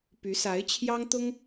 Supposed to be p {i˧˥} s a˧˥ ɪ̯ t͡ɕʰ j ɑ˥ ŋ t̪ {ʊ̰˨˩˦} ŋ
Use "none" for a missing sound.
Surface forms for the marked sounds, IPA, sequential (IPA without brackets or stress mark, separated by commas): y˧˥, ʊ˥